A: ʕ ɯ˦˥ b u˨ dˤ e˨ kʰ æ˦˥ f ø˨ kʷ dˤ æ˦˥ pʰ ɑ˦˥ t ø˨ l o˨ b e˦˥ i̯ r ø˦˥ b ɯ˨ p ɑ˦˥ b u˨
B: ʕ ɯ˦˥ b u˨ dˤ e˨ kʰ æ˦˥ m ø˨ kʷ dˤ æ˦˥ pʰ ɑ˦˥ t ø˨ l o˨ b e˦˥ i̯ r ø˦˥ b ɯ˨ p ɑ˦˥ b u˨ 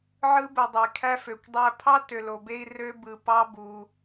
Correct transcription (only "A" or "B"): A